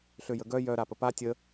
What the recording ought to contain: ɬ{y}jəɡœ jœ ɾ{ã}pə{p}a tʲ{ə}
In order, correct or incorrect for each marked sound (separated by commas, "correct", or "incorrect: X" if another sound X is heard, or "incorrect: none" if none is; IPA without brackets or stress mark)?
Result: incorrect: ø, incorrect: a, correct, correct